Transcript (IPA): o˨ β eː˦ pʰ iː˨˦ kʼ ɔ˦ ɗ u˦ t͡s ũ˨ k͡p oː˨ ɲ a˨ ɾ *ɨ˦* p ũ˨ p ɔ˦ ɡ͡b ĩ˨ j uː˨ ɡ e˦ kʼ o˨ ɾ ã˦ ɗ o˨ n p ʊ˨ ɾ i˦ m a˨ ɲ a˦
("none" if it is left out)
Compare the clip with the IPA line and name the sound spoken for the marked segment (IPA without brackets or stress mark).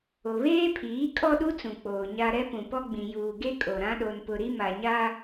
ɛ˦